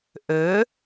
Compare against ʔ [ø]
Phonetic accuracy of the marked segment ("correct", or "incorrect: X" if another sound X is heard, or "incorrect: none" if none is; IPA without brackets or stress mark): correct